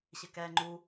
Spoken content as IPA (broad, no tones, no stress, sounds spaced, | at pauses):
ɕ ɪ k ɛː ŋ͡ǃ u